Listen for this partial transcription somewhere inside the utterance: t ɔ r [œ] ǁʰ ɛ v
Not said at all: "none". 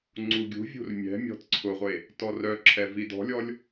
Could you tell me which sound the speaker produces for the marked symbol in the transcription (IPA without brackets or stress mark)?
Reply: œ